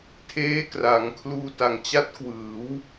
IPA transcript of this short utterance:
tʰeː˦˥kra˩˦ŋkʰluː˧ ta˨˩ŋt͡ɕa˦˥t̚ kwɯː˩˦w

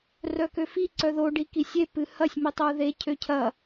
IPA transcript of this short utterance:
rœkøfi ǀœðo ɖikisʲe pɨhɐsʲ mitˤœu̯ðe cʰøcʰɐ

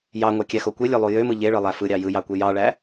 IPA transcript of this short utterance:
jɑŋʷɑkʲæxo kʷelʲølˠu jømɯ ʎeɭɯlˠæ fɯɾʲɑ jɯjɑkʷe jɑɭæ

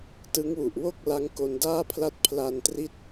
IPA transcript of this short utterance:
tɯ˦˥ŋwu˨˩ʔwo˥˩k̚ la˦˥ŋko˧ndaː˥˩pʰla˥˩t̚ pʰla˧ntri˥˩t̚

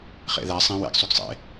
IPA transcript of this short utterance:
χḛðæ sˤẽ wḛɡ sˤyɡsˤḛ

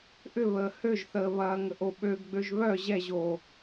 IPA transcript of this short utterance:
ʔʏβəː høʒθəː βɐːŋəʔoɓøɡ ɡ͡bøʒβœ ʑɛʑoː

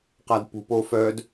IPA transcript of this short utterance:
qadpṳpofœd

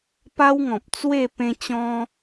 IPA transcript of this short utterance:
pa˦wŋɔ̃˨p̚t͡swe˥˧ pẽ˧t͡ɕɔ̃˧

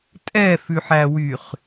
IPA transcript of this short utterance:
tʼɛfʉħæwyχ

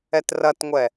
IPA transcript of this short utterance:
ɛtrɐtŋʷɛ

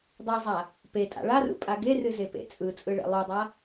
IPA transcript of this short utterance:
dˤezˤa | petʼa̰ ɭarṵpʼa ɡerɨzepḛ t͡sʼɯt͡sʼɯɭḛ lˠudˤa

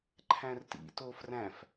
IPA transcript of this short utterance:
ǃʰæ̃rtḭ tofræ̃f

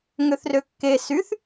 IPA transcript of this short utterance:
ŋøθrøkːe syθ

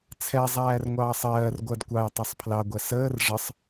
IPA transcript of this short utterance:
t͡sʰɛzˤæːrŋʷɑːsˤ ɜːr ɡʷɜdkʷɑj tˤɛsˤpʰlɑɡʷɛ səːr ʐəsˤ

